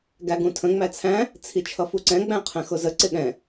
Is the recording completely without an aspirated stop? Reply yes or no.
no